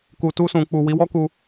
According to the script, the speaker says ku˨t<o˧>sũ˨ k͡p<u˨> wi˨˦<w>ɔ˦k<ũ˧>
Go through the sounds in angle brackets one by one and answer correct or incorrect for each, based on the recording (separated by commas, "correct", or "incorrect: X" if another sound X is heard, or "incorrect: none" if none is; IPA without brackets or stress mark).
incorrect: u˧, correct, correct, incorrect: u˧